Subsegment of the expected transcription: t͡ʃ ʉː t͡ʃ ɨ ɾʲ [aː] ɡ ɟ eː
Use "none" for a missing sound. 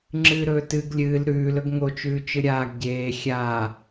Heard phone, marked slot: aː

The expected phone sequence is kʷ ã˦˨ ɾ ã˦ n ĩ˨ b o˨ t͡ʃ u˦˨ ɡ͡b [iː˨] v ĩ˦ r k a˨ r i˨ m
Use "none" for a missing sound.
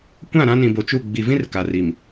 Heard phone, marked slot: i˨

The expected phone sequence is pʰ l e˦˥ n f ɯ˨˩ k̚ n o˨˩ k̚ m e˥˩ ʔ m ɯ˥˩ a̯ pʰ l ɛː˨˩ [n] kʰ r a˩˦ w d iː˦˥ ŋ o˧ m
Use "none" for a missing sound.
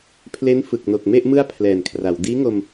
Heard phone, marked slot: n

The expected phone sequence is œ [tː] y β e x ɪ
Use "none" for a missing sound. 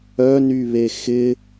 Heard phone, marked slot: n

